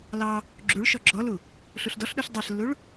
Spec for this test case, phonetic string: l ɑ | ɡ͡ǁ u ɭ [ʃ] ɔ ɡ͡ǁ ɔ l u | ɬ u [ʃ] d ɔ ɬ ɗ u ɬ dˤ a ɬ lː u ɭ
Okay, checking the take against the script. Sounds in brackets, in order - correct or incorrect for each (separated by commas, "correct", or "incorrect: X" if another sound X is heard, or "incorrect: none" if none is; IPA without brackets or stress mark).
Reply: correct, incorrect: ɬ